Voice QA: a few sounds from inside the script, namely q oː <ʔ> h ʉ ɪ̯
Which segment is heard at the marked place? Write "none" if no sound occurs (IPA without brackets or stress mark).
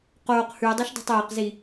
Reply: q